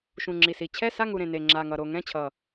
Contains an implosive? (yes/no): no